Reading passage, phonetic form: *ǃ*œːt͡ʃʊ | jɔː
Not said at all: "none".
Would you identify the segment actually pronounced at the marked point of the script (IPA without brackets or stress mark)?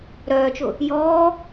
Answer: ɾ